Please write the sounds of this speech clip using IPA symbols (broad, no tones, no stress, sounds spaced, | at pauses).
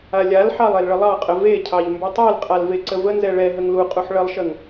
a lʲ a l ħ ɑ lˠ e l ɭ ə lˠ ɑ qʼ ə v e cʰ ɑ ʎ m b ʉ tˤ ɛ l qʼ a l v e ǀ ə v ə n z ɛ ɭ ɛ ɦ ə ŋ l u qʼ u ħ ɭ ə lˠ ʃ ə ŋ